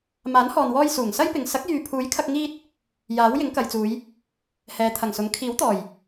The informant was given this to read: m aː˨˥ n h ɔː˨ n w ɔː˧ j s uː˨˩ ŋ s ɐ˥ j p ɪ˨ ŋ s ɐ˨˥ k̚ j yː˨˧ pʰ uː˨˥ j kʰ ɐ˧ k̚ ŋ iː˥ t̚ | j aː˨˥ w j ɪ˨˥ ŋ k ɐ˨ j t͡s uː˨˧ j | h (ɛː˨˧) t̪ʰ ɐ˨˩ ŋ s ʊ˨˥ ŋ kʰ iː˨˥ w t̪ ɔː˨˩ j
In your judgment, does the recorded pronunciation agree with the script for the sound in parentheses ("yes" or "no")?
yes